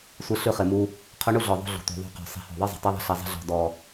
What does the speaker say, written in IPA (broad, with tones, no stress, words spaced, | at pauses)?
sʷɨ˦ɬʉ˦χɪ˨mu˦ | qʰu˦ɳu˦ɮɔ˨ ðˤṳ˦ɮṳ˨ tʷi̤˨ðˤṳ˦˨ qɔ̤˨ sˤi̤˨hɔ̤˨ðˤɨ˦ zˤə̤˨tˤʉ˦ðˤə̤˦˨ɬi˨ zˤə̤˦ɮɔ̤˨ dɔ˨